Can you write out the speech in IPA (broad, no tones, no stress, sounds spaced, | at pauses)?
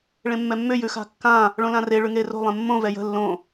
ɭ ẽ mː ɛ mː ʏ j ʉ x a̤ kː ã | ɭ õ l ã r e ɭ ʉ ŋ e r o̤ lˠ ẽ mː õ v ɛ j ə̤ lː õ